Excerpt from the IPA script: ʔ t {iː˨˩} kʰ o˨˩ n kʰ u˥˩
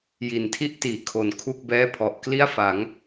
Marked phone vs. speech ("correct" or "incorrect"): incorrect